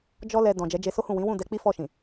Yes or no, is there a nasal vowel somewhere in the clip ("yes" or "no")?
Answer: yes